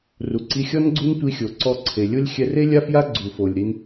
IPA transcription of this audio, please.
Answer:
r u˩ ǀ i˧ xʲ ɔ˥ n ɡ͡ǀ u˥ n tʷ i˧ xʲ o˩ ǀ ɔ˧ ǀʰ e˩ lʲ o˥ lʲ xʲ ɛ˧ r e˥ lʲ a˥ f j a˥ ɡ͡ǀ u˩ f o˩ lʲ ɾ i˧ n

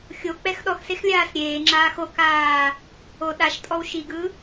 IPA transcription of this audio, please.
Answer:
xʲ o k͡p ɛ x ɗ ɔ x s e x lʲ aː s ɾʲ eː ŋ͡ǁ aː x o k aː | o ɗ a ʃ tʼ ɔ w ʃ i ɡ ɯ

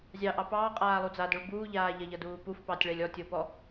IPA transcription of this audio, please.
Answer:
zʲ ɑ ʔ ɑ p ɑː qʼ aː lˠ u d͡z a d o ɭ b uː ʎ aː ʎ ɐ ʎ ʌ d uː p u f p ɑ tʲ ɭ ɛ lʲ ɔ tʲ o p ɔ

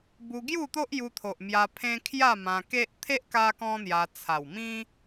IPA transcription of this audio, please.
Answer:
b u˧ ɡ j u˥˧ t̪ o˦ ʔ j u˧ t̪ʰ o˨ ʔ m j a˧ pʰ ẽ˦ kʰ j a˥˧ m ã˧ k e˦ ʔ t̪ʰ e˦ ʔ k a˦ k ɔ̃˦ n̪ j a˧ t͡sʰ a˨˩ w m ĩ˦

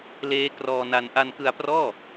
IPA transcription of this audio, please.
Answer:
l eː˦˥ k r ɔː˧ n a˧ n ʔ a˧ n k ɯ˧ a̯ p r ɔː˥˩

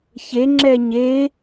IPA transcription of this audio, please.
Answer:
ç e ŋ͡ǁ ɛ ɲ e

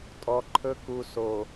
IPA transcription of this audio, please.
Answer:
tʼ ɔ˨ ǃʰ ɵ˦ k u˨ s o˨

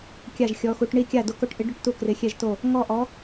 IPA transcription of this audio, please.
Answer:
kʲ a˥˧ ʒ xʲ ɔ˧˥ x u˧˥ ʈ ɳ i˥˧ kʲ a˥˧ d o˧˥ k o˧˥ ʈ ʔ ɪ˧˥ ɖ ʊ˥˧ ʈ t u˥˧ k r ɪ˧˥ xʲ ɛ˥˧ ʒ t o˥˧ | ŋ ɔ˥˧ ʔ ɔ˧˥

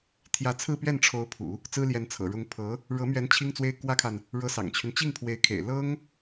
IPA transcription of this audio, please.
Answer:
t̪ʰ j ä˧˥ t͡sʰ ɹ̩˥˧ p ɥ ɛ˥˩ n ʈ͡ʂʰ o˧˥ ʊ̯ pʰ ṵ˨˩˦ | t͡s ɹ̩˥ l j ɛ˧˥ n t͡sʰ ɤ̰˨˩ ɻ ʊ˧˥ ŋ pʰ ɤ˧˥ | ɻ ɤ˧˥ m ɥ ɛ˧˥ n t͡ɕʰ i˥ ŋ t͡s w e˥ ɪ̯ k w ä˥ kʰ a˨ n | ɻ ɤ˧˥ s ɑ̰˨˩ ŋ t͡ɕʰ y˦ n t͡ɕ i˥˩ ŋ pʰ w e˧˥ ɪ̯ kʰ ḛ˨˩ ɪ̯ l ɤ˥ ŋ

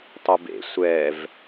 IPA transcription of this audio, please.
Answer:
tˤ ɯ b ḛ sʷ ɛ v

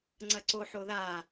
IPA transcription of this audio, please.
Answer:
ŋ͡ǀ ɐ ǀ o ħ o ð a

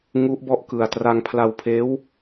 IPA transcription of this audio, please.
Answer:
ŋ u˦˥ ʔ b ɔ˦˥ ʔ k ɯ˨˩ a̯ t r a˧ ŋ pʰ l a˧ w pʰ eː˦˥ w

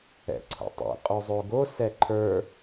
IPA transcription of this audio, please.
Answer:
ɛ̰ ǀʰ o̰ tˤ ḭ qʼ o zˤ o ɡ o s ɛ ǃʰ ə˞

